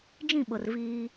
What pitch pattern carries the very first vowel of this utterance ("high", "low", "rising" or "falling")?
falling